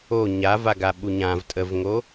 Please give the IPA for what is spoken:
o ɲ a v a ɡ a ɓ u ɲ ã v tʼ ə v ŋ o

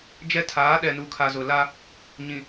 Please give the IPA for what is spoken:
d͡ʒ ɛ˦ tʰ aː˨˦ ɗ ɛ˨ n u˨ kʰ a˨ z ʊ˨ l a˦ | ɲ ĩ˨

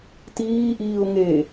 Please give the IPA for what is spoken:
t iː ʔ iː ʊ̯ ŋ e

